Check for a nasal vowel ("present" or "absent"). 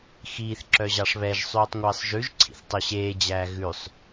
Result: absent